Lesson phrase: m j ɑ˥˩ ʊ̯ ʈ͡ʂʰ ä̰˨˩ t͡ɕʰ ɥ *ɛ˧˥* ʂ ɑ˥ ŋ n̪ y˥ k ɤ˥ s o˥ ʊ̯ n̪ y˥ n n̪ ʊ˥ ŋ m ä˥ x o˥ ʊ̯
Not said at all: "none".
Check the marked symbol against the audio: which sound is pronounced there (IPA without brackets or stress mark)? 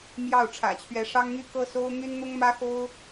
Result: ɛ˧˥